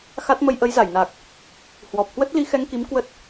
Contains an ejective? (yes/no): no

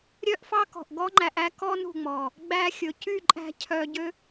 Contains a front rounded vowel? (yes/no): yes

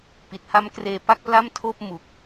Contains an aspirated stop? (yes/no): yes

